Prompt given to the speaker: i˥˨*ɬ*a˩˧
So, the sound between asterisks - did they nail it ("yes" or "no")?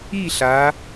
yes